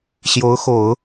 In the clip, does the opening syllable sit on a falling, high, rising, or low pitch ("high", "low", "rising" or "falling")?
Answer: rising